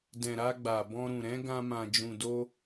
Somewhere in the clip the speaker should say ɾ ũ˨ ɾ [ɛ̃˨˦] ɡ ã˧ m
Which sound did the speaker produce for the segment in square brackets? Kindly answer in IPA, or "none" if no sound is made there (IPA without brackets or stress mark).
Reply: ɛ̃˨˦